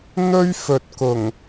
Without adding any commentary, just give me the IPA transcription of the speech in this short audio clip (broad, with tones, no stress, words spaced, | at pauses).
n̪ɵ˥ɥfɵ˨t̚kʊ˨˩ŋ